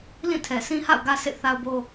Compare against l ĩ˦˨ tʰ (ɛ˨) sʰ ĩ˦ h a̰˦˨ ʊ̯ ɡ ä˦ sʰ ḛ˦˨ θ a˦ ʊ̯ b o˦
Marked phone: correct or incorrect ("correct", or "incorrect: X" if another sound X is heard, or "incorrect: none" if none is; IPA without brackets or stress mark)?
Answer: correct